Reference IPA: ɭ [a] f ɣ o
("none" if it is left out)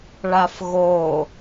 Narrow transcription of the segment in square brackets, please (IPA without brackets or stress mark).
a